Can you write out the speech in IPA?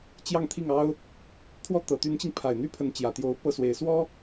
t͡ɕ j ɑ˥˧ ŋ t̪ʰ i˥˩ ŋ ɑ˥ ʊ̯ | t̪ʰ w ɔ˥˩ t̪ ɤ˨˩ t̪ y˧˥ n t͡ɕ i˧ ŋ pʰ a˨˩ ɪ̯ n̪ y˥ pʰ ə˧˥ n t͡ɕ j ä˨˩ t̪ j o˧˥ ʊ̯ p ɤ˥˩ s w e˨˩ ɪ̯ s w ɔ˥

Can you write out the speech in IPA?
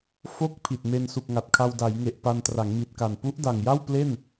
f o˦˥ k̚ pʰ i˨˩ t̚ m e˧ n s u˨˩ k̚ ŋ a˨˩ t̚ kʰ a˧ w d a˩˦ j ŋ e˨˩ ʔ p a˧ n t r a˩˦ ŋ m i˨˩ t̚ k a˨˩ n p u˦˥ ʔ d a˨˩ ŋ j a˥˩ w p l e˥˩ n

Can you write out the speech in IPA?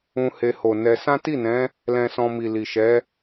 ũ˧ h e˧ h o˨ n ɛ˧ s ã˦ t i˦˨ n ɛ̃˨˦ | l ɛ̃˧ s ɔ̃˧ m i˨ l i˨ ʃ ɛ˨˦

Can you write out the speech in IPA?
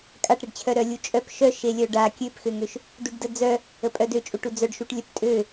kʼ a ʈ ɾ e ɖ t͡ɕʰ œ ɾ œ lʲ u t͡ʃʼ œ p ʃ œ ʃ e lʲ œ ɖ a kʲ ø p x ø ŋ ø ʃ | d u ɖ d ə d͡z œ | ə pʼ œ d ø t͡ʃʼ u ʈ u d͡z œ ɖ ʃ u ʈ lʲ œ p tʼ ø

